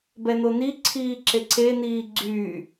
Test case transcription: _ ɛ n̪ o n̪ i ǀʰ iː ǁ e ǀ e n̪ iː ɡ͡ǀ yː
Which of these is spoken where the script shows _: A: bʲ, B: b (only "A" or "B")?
B